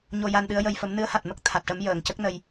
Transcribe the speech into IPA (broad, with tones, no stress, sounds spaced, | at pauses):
ɲ o˧ j a˧ n ɗ ɨ˧˥ ə̯ j ə˧ j f ə˧˥ m n ɨ˧˥ ə̯ h a˨˩ t̚ m ə˦˥ k̚ t̪ʰ a˨˩ t̚ ʈ ə˧˥ m j əː˨˩˨ ŋ c ə˦˥ k̚ n ə˧ j